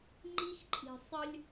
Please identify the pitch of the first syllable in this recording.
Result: high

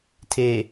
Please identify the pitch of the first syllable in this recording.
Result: low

